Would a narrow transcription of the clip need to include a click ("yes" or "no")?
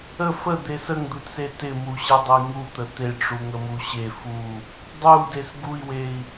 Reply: no